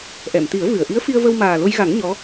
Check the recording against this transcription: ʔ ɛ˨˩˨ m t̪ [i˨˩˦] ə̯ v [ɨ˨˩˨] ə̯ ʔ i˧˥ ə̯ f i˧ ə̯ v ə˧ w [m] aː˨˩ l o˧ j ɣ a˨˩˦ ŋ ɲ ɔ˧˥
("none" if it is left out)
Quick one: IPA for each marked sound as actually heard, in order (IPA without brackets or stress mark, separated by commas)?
i˨˩˦, ɨ˨˩˨, m